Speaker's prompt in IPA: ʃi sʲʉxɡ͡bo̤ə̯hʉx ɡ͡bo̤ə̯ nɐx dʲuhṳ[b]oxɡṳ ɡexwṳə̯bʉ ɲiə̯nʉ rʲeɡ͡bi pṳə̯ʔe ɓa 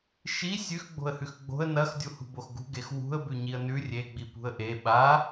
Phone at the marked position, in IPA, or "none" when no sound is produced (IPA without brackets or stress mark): b